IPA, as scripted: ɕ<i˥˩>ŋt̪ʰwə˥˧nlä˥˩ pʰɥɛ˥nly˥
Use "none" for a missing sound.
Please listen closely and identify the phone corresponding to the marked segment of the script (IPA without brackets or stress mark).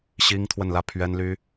i˥